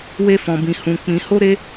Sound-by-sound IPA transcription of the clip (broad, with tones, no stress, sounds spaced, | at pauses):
w e˦ f ɔ̃˧ b ĩ˧ h ũ˧ k͡p ĩ˧ h o˦ ɾ e˦